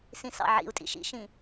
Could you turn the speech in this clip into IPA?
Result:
s ĩ s ɑ̰ ʕ ḭ u̯ tʼ ḭ ʃ ḭ ʃ ĩ

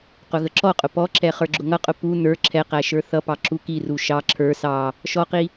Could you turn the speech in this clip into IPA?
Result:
q ʊ ɣ ə ǁ ɔ qʼ ʊ p ɔ ǁ ɛ χ ə˞ ɡ͡ǁ ʊ ŋ ʌ qʼ ʊ p u n ə˞ ǁʰ ɛ q æ ʃ ə˞ θ ʌ p ɑ ǁ u k i r u ʃ ɑ ǁʰ ə˞ s ɑ | ʃ ɔ q i

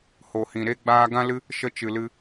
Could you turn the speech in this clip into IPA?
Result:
h o˨ h ĩ˨ ɾ e˦ ɡ͡b aː˦ ɡ ã˦ l ɨ˦ | ʃ ə˧ t͡ʃ ɨ˨ l ɨ˧

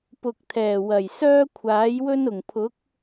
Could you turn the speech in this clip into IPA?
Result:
p ʊ˨ k̚ t̪ʰ ɛː˨˩ w ɐ˨˩ j s œː˥ kʷʰ aː˨˥ j w ɵ˥ n ʊ˨˩ ŋ pʰ ʊ˨˥ k̚

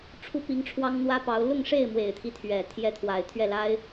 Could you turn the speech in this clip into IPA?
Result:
ʈ͡ʂʰ u˥ p i˧˥ ŋ ʈ͡ʂʰ w ɑ˥ ŋ n̪ w ä˥ p ɑ˧˥ ʊ̯ l ʊ˥˧ ŋ ʂ e˥˩ ɪ̯ m w e˨˩ ɪ̯ t̪ʰ i˦ t̪ʰ ɥ ɛ˨˩ t̪ʰ j ɛ˧˥ t̪ʰ w a˨˩ ɪ̯ t̪ʰ ɥ ɛ˥˩ l a˥ ɪ̯

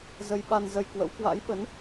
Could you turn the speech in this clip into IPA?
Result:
z ə˧ j ɓ a˧ n z ə˧ j k w ə̰˧˥ w k w a̰˧˥ j ɓ ə˨˦ n

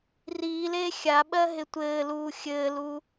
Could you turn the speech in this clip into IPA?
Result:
r iː l eː xʲ a ɓ ɜ ɦ ɪ tʷ ɘː l uː xʲ ɘː l u

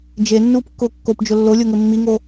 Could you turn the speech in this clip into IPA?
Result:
d͡ʒ e nː uː p kː ʊː kː o p d͡ʒ ʊ lː o lʲ o ŋ ɘ mː i ŋ o

